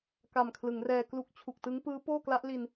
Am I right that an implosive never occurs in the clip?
yes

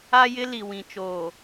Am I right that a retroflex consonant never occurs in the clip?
yes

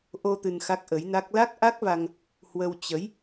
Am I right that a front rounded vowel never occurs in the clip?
yes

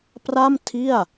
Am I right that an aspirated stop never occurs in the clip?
no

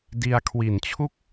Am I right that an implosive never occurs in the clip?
yes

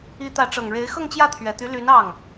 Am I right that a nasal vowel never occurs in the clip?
yes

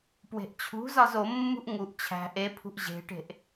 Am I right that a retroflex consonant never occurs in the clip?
no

